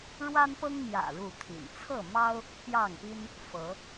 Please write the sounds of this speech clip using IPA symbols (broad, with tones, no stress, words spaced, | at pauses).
ɻwa˦npɤ˦ŋmjä̰˨˩ ɻu˥˨t̪ʰḭ˨˩n t͡sʰɤ˥˨mɑ˦ʊ̯ | pjɑ˥˨ŋpi˦n | fɤ˨˦